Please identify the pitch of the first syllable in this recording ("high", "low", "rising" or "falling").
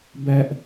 low